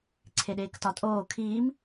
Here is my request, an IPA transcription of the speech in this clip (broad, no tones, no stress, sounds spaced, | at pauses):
ǀʰ e ɗ eː k t ɒ tʼ oː kʰ iː m